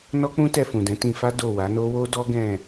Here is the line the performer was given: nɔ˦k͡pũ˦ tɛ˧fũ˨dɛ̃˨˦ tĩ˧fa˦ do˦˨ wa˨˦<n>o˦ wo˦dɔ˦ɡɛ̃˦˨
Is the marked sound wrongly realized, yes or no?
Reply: no